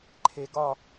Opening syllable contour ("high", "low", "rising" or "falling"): low